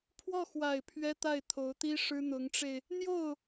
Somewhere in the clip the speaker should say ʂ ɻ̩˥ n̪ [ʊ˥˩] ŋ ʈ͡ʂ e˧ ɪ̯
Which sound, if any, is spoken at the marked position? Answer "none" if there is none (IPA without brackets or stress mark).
ʊ˧˥